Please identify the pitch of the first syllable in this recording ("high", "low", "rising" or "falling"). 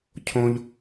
high